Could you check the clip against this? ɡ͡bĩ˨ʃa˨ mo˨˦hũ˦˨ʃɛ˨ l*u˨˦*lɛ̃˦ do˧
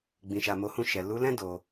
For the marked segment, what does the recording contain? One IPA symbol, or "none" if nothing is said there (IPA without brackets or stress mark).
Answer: u˨˦